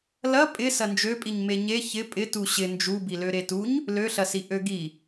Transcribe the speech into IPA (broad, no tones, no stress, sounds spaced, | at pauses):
l ɐ pʼ ɪ s ɐ n d͡ʒ ø pʼ i ɲ m e ɲ e ç ɪ pʼ ɪ t u ɕ ɪ n d͡ʒ u b i l ø ɾ e t u ɲ | l ø ɬ ɐ s i ʔ ø ɡ i